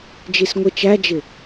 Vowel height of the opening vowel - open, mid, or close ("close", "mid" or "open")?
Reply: close